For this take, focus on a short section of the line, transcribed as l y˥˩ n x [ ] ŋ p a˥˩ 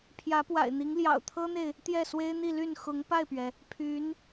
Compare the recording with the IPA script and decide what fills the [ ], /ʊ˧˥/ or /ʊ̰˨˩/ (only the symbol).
ʊ˧˥